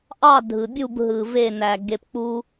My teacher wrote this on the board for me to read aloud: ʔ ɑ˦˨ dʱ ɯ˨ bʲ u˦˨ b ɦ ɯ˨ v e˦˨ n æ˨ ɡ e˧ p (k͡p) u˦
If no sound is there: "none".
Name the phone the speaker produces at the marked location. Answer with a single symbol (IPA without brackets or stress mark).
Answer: k͡p